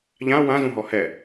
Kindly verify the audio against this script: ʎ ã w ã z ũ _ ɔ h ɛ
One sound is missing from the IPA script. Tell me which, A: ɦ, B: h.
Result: A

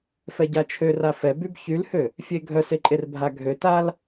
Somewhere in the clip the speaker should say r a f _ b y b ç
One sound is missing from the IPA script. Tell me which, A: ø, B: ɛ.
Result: B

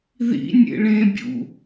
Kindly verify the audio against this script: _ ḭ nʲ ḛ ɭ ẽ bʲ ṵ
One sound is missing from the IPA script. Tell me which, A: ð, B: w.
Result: A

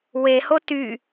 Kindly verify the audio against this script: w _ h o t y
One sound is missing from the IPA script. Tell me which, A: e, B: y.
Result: A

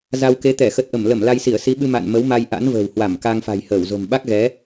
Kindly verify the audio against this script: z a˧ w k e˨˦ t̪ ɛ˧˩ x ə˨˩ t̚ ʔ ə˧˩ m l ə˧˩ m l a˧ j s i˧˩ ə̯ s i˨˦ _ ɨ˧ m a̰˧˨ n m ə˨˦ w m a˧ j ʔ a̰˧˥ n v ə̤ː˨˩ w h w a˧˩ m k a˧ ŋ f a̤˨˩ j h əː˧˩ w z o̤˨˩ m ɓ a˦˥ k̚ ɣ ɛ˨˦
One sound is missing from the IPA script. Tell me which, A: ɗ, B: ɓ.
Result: B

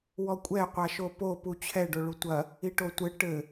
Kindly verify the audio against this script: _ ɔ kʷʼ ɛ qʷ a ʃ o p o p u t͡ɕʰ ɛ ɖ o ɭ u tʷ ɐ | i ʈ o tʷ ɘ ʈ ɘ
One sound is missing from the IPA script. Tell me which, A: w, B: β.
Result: A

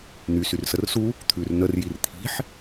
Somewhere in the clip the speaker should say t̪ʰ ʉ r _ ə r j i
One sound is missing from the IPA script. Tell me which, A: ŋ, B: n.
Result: B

